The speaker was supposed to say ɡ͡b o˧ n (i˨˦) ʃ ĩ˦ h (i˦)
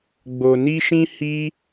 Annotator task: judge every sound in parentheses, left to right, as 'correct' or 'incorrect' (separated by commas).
incorrect, correct